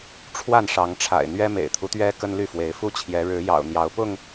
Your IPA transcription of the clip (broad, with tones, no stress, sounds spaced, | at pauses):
ʈ͡ʂʰ w a˥˨ n ʂ ɑ˨˦ ŋ ʈ͡ʂʰ a̰˨˩ ɪ̯ n̪ ɥ ɛ˦ m ḛ˨˩ ɪ̯ t̪ʰ u˦ t̪ ɥ ɛ˦ k ə˦ n l y˥˨ f w e˨˦ ɪ̯ f u˦ t͡ɕʰ j ɛ˨˦ ɻ ɻ̩˨˦ j ɑ̰˨˩ ʊ̯ n̪ j ɑ˨˦ ʊ̯ p ʊ˥˨ ŋ